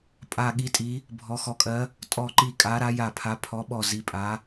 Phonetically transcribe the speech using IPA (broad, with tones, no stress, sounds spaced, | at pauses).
pʼ a˦˨ ɠ i˧˥ tʼ i˧˥ | bʱ ɔ˧˥ x ɔ˧˥ kʼ ɜ˧˥ | tʼ ɔ˦˨ ǃ i˦˨ kʼ a˧˥ ɾ a˧˥ j a˦˨ pʰ a˧˥ pʰ ɔ˧˥ ɓ ɔ˦˨ z i˧˥ pʼ a˧˥